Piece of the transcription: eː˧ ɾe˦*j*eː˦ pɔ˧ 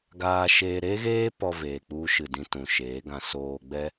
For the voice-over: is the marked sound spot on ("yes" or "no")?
no